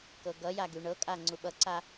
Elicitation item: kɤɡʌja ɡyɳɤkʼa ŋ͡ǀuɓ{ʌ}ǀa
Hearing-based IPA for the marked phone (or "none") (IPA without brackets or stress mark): ʌ